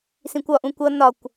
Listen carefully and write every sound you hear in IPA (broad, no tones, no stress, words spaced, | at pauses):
sĩkʷɒʔũ kʷʌ nɒkʷ